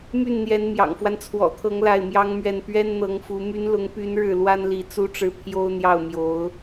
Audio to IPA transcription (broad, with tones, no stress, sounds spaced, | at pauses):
m y˥˩ n n̪ j ɛ˧˥ n m j ɑ̰˨˩ ŋ f w a˦ n t͡sʰ w ɔ̰˨˩ t̪ʰ ɤ˧˥ ŋ l a˥˩ ɪ̯ m j ɑ˥ ŋ m ɥ ɛ˥˩ n p ɥ ɛ˥ n n̪ ɤ˧˥ ŋ f u˧˥ m y˧˥ n l ʊ˧˥ ŋ p y˧˥ n ɻ ɻ̩˥˩ l w a˥ n l i˧˥ t͡s u˥ ʈ͡ʂ ɻ̩˥˩ pʰ j o˥ ʊ̯ n̪ j ɑ˥˩ ʊ̯ m j o˧˥ ʊ̯